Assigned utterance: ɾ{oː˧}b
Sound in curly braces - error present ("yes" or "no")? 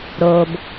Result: no